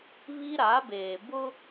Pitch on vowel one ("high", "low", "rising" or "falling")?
high